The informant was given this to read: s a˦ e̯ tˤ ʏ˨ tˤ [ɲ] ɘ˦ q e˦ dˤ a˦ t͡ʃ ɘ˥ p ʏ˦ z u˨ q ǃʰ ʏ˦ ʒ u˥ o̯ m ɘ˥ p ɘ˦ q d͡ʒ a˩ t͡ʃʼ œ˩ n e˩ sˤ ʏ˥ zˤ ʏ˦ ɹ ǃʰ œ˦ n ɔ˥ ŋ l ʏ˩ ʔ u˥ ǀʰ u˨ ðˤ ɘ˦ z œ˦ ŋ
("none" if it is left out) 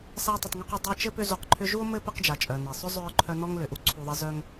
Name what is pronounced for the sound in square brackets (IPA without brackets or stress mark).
ŋ